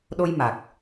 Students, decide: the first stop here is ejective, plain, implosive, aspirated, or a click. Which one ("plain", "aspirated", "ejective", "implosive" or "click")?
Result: implosive